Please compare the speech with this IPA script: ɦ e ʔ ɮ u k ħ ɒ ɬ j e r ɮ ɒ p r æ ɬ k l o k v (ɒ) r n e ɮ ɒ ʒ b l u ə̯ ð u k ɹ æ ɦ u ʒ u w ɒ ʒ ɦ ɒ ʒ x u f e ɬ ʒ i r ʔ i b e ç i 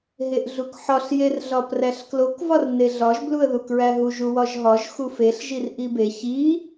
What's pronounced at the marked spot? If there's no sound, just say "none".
ɒ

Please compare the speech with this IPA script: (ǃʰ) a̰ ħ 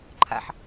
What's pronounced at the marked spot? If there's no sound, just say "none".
ǃʰ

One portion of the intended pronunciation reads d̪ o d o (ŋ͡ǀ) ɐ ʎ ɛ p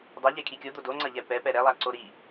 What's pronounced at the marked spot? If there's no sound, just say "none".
ŋ͡ǀ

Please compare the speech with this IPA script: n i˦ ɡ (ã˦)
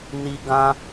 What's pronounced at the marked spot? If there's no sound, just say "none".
ã˦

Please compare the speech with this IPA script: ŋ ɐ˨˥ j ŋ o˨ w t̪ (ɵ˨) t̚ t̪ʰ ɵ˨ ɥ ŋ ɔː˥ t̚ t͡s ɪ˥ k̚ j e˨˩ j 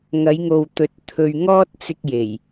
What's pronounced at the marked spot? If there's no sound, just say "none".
ɵ˨˥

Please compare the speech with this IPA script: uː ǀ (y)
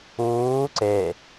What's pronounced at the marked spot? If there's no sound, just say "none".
e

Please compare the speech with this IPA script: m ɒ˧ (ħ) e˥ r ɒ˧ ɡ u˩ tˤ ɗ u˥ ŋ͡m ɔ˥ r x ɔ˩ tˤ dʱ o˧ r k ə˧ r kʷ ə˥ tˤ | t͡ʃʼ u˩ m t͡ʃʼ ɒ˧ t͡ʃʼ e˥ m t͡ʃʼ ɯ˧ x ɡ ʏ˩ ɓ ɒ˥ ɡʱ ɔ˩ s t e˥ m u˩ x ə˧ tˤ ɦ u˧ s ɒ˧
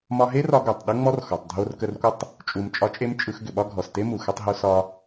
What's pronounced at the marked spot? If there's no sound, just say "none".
ɦ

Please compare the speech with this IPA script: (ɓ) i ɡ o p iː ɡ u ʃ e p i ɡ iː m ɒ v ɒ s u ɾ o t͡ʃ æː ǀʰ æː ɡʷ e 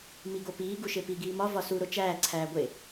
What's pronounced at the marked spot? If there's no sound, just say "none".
m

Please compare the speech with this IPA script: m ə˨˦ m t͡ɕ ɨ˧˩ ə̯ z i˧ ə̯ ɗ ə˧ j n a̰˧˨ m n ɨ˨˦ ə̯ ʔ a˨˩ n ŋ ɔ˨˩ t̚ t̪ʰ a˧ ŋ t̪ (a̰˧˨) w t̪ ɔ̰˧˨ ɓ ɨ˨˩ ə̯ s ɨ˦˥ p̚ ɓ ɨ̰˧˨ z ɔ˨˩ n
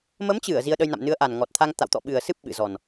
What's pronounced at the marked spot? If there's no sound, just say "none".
a̰˧˨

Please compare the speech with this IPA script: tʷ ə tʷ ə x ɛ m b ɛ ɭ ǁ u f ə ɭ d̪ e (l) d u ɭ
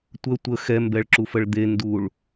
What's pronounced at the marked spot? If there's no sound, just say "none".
n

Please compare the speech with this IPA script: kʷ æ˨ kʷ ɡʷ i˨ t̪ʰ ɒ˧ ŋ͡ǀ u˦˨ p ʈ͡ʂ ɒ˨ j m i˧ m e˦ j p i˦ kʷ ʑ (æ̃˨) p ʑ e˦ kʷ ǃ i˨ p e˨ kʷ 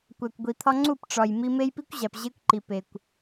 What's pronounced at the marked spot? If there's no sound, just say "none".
æ˨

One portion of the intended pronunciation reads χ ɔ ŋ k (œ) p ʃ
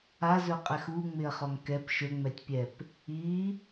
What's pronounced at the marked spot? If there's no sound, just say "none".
ɛ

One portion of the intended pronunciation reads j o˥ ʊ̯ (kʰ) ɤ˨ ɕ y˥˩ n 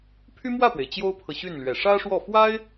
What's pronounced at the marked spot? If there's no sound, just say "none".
pʰ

